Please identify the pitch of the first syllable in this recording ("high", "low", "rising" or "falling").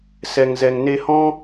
low